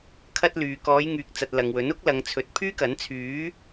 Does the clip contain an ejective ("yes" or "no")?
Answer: no